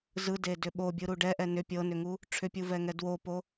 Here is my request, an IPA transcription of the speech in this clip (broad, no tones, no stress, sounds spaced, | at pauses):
z ɯ d e d ʏ ɓ o bʲ ɯ ɾ u ɖ ɛ ʔ ɛ n ʏ pʲ ɤ n ʏ ŋ u | ʈ͡ʂʰ ʏ pʲ u v ɛ ŋ ɛ d w o p o